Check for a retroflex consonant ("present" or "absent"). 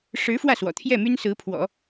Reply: present